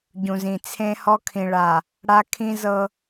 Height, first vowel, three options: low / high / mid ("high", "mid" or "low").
high